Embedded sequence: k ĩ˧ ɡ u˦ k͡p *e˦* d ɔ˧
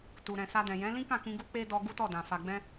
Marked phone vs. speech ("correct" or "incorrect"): correct